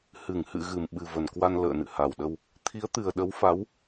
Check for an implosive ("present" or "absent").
present